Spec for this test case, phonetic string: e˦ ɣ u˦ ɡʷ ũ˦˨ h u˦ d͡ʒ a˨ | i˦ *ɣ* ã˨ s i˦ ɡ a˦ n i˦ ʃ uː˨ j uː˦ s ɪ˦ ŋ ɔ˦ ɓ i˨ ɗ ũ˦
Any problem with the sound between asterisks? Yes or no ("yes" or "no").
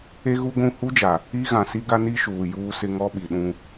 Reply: no